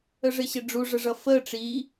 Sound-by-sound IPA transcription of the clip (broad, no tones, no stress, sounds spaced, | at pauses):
ə ʐ ɪ ɕ ɪ ɖ͡ʐ u ʐ ə ʐ ʌ f əː ʈ͡ʂ i